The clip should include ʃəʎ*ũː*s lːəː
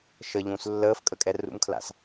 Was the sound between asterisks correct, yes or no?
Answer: yes